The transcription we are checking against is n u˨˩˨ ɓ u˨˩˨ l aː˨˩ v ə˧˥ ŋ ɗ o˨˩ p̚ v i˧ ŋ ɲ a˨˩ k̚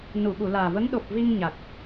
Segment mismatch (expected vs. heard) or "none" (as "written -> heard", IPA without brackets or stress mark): none